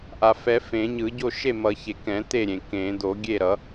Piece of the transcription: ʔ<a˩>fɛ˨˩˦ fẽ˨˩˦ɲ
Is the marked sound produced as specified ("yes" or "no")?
yes